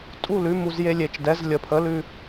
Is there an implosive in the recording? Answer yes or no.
no